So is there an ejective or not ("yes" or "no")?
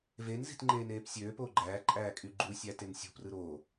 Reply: yes